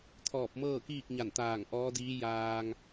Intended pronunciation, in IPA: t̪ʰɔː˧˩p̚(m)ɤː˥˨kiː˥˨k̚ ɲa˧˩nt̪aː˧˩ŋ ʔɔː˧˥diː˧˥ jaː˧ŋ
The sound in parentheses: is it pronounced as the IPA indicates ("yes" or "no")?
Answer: yes